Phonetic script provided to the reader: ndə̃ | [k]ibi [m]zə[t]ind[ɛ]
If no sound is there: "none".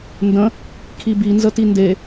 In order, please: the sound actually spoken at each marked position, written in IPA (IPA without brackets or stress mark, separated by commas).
kʰ, n, t, e